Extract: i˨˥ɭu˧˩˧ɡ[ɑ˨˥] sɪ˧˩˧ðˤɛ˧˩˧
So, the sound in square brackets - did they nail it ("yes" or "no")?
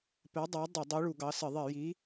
yes